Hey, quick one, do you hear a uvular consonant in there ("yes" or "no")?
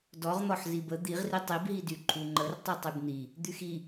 yes